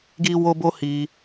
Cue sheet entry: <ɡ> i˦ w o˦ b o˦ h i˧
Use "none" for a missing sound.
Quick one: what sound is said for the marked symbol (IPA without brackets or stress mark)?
ɡ